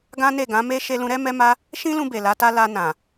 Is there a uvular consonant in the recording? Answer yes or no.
no